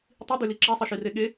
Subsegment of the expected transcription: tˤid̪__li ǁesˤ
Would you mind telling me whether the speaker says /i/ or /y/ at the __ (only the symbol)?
y